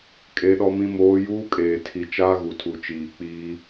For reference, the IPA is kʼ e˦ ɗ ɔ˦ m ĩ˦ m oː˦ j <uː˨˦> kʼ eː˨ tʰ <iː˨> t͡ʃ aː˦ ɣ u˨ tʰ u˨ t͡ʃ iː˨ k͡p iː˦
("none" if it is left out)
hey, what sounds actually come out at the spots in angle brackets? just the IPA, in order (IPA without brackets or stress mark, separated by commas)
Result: uː˦, i˨